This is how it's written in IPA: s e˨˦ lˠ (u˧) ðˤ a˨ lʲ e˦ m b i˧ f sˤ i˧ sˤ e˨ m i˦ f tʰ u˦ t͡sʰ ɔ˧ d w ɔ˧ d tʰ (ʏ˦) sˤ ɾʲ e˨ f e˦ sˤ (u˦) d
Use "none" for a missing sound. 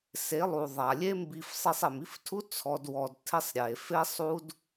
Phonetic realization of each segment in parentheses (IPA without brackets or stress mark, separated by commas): u˨, ɪ˦, u˦